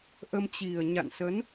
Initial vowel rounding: unrounded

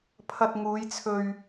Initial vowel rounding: unrounded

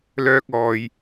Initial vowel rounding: rounded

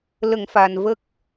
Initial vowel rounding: unrounded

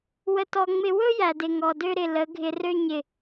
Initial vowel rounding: unrounded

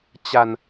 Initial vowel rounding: unrounded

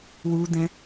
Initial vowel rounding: rounded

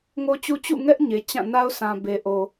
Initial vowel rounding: rounded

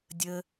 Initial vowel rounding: unrounded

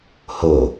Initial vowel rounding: rounded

